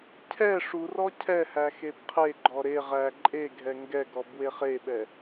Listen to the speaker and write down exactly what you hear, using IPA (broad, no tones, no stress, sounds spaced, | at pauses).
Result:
cʰ ɛ ʂ u r ɔ cʰ ɛ h æ x e b qʰ e ɡ͡ǃ ɔ ɾ e ʁ æ ǃʼ e ɡʱ ɛ ŋ ɡ ɛ ɡ ɔ b w e χ e ɓ ɛ